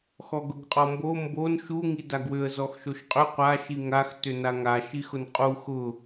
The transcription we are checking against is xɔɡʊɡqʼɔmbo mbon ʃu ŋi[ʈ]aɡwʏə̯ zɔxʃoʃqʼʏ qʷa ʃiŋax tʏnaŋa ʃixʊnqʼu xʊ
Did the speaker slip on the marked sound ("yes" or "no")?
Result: yes